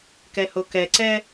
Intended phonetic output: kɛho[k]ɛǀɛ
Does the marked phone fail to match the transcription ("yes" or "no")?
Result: no